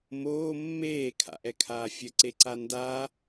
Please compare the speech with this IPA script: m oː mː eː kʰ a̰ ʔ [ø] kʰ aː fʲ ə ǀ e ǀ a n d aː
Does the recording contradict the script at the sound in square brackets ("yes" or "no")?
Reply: yes